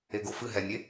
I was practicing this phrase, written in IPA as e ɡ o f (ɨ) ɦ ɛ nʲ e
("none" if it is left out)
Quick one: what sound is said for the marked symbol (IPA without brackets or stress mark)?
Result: ɨ